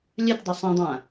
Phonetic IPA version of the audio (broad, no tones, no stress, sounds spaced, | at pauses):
lʲ œ t dˤ ʏ sˤ ĩ dˤ ã